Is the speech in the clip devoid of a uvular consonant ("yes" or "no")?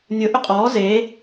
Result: no